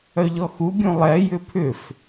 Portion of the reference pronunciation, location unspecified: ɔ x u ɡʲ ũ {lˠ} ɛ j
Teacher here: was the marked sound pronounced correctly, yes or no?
yes